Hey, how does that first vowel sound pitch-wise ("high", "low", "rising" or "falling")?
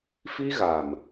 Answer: high